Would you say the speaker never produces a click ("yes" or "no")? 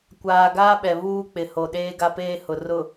yes